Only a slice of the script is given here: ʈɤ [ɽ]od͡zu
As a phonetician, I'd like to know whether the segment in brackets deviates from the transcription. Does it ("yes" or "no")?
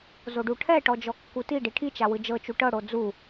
no